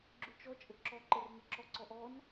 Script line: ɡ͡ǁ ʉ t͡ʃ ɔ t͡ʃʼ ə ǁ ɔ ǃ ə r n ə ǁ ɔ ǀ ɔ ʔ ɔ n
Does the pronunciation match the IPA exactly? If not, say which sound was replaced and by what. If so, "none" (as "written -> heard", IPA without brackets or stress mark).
none